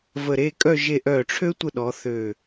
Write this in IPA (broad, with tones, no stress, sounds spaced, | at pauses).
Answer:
v ə˧˩ ɾ e˥˧ kʼ œ˥˧ ʒ e˧ ʔ œ˧˩ ʈ͡ʂʰ ø˥ tʷ ə˥˧ ɗ ɔ˩˧ θ øː˧˩